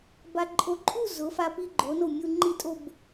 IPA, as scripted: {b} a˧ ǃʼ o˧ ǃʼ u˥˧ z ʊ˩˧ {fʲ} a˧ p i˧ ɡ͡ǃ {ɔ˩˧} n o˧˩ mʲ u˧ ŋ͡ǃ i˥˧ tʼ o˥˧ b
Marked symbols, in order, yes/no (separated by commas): yes, no, no